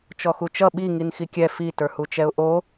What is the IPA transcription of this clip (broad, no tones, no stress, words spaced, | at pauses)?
t͡ʃɔxut͡ʃʌ ɓi ŋinxikʲɛ fi tə˞hut͡ʃɛʊ̯ʔo